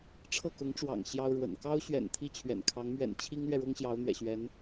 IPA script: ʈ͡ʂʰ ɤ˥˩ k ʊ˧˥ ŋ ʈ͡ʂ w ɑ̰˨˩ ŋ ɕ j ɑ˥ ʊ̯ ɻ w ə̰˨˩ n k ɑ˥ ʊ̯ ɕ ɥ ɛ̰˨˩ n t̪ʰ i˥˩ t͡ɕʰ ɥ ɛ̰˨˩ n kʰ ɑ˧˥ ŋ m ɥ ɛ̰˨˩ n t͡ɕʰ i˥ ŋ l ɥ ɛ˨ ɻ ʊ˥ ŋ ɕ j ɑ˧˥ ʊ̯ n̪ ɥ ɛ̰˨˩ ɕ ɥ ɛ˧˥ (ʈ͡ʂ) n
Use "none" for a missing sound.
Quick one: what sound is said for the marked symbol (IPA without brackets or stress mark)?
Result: none